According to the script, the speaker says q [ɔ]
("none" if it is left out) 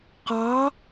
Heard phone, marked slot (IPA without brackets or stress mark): ɑ